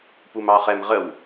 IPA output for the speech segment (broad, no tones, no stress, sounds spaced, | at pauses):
p u m ɑ χ ɛ m ʁ ə w